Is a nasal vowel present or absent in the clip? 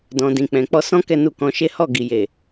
present